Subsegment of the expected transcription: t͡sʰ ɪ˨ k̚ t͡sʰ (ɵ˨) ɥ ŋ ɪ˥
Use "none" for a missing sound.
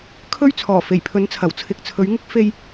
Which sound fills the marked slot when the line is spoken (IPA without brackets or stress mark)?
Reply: ɵ˨˧